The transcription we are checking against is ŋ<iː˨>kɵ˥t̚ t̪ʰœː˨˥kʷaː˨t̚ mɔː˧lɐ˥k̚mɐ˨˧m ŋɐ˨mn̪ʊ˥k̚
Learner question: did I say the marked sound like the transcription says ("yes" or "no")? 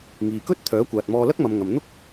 yes